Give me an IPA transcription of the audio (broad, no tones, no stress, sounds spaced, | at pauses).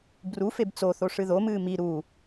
b r u f e b t͡s o θ o ʂ ɨ ð o m ɨː m i ɾ u